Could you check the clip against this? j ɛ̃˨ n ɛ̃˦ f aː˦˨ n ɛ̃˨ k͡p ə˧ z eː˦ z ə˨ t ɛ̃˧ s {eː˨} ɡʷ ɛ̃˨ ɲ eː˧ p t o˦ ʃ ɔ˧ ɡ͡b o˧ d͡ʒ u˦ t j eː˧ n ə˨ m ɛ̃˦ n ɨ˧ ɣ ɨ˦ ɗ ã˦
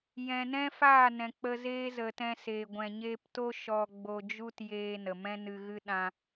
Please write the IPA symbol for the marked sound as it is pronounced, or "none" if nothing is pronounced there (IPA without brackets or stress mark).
eː˨